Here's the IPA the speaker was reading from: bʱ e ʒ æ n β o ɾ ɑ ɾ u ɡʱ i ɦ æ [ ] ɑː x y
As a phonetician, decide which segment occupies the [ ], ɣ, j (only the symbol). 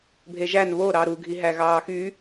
ɣ